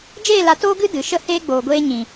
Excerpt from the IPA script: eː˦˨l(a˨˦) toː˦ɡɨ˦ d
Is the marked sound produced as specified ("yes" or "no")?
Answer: yes